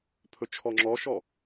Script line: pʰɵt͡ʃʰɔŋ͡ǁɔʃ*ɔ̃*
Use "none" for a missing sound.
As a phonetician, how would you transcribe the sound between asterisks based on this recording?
ɔ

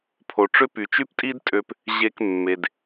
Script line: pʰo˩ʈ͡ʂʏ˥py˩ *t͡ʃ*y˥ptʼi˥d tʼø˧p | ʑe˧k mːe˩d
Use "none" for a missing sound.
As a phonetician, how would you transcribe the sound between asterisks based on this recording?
t͡ʃ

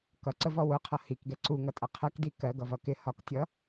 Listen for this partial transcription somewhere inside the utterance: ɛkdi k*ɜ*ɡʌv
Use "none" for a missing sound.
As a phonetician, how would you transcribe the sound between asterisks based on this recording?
ɜ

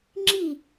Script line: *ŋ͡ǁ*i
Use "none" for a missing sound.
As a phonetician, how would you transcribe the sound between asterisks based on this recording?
ŋ͡ǁ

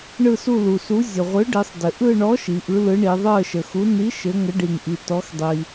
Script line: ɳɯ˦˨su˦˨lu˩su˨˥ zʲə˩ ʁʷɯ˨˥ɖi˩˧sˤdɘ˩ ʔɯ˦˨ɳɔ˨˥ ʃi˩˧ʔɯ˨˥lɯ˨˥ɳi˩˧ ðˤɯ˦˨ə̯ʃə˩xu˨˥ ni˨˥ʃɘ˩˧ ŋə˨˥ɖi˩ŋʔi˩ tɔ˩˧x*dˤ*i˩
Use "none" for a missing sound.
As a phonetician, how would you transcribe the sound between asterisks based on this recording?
dˤ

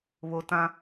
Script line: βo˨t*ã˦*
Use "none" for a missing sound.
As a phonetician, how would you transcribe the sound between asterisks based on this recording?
ã˦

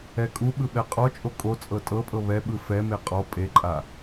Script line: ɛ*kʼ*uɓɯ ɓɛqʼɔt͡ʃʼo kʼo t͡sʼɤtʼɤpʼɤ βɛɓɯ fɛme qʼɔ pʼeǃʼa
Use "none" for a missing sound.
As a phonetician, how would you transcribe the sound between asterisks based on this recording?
kʼ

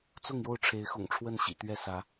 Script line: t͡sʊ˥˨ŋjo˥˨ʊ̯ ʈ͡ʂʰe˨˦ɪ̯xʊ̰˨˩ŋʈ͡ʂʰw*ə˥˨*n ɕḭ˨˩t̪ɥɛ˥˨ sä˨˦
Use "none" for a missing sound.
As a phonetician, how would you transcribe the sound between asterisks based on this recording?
ə˥˨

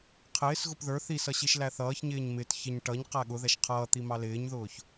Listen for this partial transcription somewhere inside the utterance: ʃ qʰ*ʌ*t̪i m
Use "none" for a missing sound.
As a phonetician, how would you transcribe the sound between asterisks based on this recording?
ʌː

